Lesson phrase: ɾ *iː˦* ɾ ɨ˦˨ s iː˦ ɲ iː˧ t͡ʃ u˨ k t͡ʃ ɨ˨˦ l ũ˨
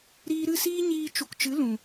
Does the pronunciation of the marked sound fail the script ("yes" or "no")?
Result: yes